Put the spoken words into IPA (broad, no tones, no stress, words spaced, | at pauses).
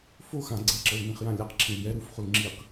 fo xã ɡ͡ǀeǁɤlnĩχjã lʲaqǁʰĩl jɛ ɾufχul ŋ͡ǁiq